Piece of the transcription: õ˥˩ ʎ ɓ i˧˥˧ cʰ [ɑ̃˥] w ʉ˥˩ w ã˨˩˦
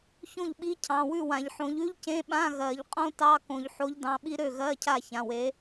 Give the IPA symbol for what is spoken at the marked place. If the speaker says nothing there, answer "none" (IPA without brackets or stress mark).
ɑ̃˩˧˩